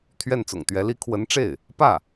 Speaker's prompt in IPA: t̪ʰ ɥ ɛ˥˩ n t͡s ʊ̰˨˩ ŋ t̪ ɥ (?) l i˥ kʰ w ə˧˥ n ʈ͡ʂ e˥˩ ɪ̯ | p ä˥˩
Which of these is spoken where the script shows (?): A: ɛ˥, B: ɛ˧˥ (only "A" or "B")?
B